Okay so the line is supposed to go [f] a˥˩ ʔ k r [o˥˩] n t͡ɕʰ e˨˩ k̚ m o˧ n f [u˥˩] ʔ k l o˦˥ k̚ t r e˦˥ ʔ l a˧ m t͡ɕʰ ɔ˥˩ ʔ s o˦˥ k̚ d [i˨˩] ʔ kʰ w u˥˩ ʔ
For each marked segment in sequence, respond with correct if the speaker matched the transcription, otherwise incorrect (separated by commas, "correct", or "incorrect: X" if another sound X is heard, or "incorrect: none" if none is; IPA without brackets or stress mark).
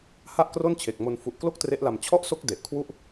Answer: incorrect: h, correct, incorrect: u˨˩, incorrect: e˨˩